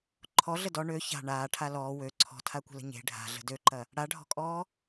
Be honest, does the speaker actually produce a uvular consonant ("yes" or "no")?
no